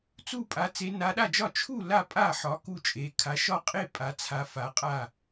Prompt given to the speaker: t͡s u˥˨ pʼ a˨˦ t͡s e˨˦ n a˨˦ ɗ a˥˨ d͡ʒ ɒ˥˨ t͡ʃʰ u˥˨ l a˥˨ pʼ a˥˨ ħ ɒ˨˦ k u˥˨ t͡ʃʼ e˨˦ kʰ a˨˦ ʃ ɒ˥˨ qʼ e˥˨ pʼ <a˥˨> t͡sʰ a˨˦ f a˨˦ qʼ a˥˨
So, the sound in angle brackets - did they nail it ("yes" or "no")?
no